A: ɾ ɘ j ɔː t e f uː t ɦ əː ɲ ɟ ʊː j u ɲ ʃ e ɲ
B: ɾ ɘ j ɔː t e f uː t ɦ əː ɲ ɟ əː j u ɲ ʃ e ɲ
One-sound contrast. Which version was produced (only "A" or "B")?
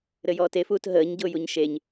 A